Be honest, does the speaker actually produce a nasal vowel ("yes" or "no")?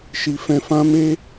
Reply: yes